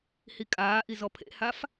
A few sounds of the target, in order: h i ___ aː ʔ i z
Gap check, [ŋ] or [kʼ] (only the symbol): kʼ